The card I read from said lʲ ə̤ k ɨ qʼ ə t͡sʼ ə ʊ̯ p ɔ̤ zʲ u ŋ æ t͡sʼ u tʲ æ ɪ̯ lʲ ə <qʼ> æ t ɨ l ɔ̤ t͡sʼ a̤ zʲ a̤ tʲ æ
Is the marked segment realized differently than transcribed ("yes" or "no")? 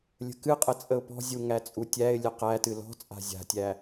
yes